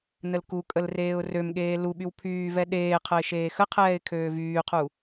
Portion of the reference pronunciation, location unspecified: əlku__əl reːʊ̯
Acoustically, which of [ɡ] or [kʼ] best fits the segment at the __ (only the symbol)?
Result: kʼ